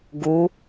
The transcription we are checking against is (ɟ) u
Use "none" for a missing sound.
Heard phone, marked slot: ɡ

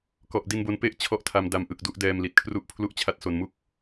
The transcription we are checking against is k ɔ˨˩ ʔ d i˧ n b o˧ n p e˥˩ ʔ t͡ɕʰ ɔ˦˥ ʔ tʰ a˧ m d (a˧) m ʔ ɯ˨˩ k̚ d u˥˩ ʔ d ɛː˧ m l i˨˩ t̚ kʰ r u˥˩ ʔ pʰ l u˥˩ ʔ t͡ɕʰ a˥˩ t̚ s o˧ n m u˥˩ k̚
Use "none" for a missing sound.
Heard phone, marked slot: a˧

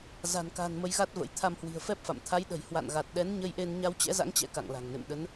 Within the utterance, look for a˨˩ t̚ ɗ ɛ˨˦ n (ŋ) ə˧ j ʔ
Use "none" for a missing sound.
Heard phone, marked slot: ɲ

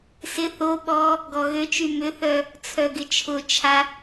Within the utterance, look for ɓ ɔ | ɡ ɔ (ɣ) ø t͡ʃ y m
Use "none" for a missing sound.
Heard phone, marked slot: ɣ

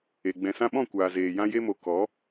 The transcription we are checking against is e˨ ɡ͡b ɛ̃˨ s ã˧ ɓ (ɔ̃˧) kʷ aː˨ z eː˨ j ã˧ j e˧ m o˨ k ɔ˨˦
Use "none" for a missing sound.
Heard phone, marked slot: ɔ̃˦˨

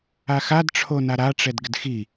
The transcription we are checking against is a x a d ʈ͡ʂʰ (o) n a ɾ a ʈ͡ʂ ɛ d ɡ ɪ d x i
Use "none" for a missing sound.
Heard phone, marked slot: o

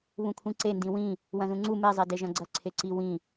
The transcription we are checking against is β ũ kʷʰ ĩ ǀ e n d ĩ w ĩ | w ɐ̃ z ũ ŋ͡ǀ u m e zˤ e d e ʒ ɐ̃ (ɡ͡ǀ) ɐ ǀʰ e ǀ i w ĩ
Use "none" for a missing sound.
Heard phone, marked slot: ɡ͡ǀ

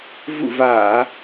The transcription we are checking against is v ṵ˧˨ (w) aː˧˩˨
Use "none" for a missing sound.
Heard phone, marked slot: v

